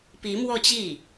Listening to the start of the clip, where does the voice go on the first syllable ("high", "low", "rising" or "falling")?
rising